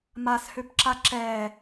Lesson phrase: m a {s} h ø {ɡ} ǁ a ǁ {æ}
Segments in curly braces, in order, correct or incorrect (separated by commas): correct, incorrect, incorrect